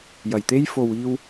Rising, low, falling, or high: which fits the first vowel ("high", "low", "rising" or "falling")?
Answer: low